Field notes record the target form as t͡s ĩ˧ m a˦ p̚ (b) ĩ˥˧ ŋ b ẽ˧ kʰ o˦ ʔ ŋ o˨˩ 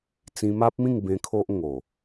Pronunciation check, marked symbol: incorrect: m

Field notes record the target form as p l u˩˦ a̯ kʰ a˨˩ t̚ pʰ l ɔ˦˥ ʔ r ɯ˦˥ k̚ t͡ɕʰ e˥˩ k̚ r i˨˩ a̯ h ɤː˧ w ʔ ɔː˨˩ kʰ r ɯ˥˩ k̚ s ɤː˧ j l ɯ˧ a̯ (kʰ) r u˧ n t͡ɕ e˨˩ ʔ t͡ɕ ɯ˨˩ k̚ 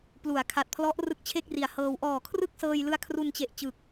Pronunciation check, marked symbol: correct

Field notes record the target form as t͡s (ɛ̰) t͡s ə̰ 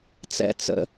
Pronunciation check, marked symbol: correct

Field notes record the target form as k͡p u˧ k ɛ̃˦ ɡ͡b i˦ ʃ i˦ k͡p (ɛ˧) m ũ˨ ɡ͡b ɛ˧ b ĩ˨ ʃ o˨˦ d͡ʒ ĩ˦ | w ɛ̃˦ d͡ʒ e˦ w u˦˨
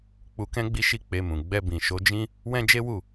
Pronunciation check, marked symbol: incorrect: e˧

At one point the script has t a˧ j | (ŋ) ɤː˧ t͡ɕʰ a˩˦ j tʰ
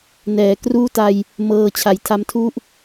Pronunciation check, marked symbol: incorrect: m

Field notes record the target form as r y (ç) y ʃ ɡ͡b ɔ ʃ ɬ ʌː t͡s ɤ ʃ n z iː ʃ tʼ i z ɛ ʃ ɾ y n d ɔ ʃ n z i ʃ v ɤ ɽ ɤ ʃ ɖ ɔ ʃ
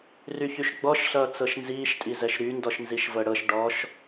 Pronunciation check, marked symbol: correct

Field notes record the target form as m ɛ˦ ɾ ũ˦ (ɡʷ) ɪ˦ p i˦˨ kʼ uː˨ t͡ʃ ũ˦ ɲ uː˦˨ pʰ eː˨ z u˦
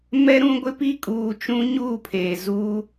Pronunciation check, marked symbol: correct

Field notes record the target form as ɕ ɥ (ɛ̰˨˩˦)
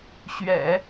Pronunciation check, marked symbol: correct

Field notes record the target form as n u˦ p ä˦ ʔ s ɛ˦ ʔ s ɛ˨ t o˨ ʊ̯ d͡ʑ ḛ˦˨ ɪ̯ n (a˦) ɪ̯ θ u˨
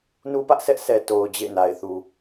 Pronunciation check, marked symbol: incorrect: a˨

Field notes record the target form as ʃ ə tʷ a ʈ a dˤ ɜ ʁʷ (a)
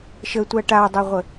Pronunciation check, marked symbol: incorrect: ə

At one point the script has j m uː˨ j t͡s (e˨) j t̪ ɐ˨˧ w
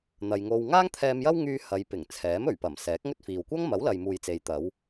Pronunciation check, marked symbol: correct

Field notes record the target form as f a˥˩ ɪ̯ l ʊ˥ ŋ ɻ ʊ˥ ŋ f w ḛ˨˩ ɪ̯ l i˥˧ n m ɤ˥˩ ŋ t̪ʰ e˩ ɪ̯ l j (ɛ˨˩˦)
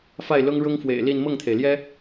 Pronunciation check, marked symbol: incorrect: ɛ˥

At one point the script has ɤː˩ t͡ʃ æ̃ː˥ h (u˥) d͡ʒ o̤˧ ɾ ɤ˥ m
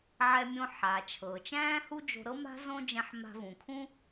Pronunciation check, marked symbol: correct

